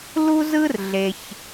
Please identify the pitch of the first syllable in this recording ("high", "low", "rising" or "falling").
high